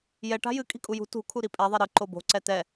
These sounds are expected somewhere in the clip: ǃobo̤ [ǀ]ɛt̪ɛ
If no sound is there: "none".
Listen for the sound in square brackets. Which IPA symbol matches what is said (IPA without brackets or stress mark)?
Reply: ǀ